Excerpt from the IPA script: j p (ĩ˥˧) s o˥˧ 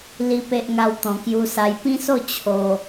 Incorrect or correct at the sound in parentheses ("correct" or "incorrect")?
incorrect